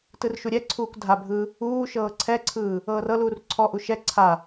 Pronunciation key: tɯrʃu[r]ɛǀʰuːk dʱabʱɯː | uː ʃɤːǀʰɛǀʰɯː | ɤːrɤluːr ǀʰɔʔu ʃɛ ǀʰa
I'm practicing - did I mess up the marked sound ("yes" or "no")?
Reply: yes